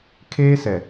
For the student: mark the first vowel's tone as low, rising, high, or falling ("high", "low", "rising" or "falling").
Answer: high